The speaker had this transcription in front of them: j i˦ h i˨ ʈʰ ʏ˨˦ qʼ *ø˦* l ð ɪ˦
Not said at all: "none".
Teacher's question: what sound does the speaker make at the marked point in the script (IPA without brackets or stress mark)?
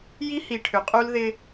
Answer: u˦